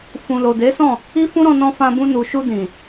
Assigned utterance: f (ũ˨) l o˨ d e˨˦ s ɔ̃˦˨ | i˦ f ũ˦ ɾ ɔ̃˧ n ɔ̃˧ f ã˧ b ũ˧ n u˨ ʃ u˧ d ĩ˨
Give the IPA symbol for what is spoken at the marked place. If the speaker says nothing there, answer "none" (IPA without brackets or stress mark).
ũ˨